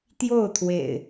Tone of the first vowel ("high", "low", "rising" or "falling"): falling